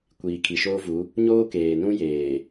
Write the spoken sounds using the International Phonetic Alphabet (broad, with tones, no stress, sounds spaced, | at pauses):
kʷ iː˨ kʰ i˨ ʃ oː˦ v u˨˦ | ɲ oː˦ k eː˨ n ũ˦ j eː˨